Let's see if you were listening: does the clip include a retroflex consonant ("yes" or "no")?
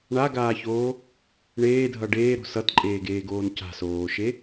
yes